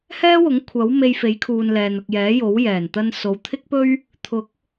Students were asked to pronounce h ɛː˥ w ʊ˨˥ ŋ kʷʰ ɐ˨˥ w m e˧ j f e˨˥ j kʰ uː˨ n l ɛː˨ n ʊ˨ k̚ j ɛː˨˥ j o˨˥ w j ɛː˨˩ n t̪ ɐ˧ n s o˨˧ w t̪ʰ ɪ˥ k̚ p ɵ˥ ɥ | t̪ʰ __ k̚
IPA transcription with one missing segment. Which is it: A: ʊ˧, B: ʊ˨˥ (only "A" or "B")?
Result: B